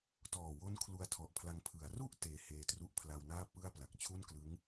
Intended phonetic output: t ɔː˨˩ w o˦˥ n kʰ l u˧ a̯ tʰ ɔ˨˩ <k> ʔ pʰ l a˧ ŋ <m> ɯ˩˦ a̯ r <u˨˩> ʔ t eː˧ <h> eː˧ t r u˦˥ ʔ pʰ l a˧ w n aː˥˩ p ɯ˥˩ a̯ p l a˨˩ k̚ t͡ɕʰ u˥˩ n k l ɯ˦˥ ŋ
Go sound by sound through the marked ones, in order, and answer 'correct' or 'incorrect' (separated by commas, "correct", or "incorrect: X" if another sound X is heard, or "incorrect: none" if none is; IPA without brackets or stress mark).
incorrect: none, incorrect: pʰ, incorrect: u˥˩, correct